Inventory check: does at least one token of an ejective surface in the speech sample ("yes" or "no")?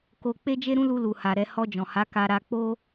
no